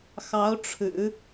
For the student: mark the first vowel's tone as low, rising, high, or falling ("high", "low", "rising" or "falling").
rising